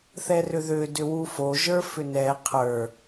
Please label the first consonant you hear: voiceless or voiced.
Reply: voiceless